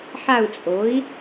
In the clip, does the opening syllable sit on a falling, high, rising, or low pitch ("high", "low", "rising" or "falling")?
falling